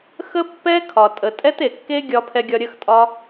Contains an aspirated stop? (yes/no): yes